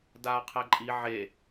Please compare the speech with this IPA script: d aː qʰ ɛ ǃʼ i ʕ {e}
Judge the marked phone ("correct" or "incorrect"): correct